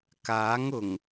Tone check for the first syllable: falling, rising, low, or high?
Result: rising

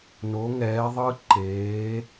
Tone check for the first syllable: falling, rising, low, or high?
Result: rising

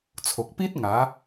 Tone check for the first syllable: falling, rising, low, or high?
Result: low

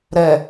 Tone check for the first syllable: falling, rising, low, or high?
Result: low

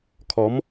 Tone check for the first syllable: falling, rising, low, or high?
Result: rising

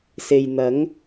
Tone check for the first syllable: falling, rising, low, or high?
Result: low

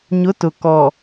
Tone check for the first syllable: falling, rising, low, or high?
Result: rising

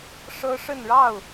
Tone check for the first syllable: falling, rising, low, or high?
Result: high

